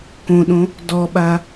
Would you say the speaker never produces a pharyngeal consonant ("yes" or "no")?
yes